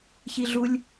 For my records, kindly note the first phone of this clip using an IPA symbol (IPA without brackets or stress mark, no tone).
ç